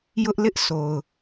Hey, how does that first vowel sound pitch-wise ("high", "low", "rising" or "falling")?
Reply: high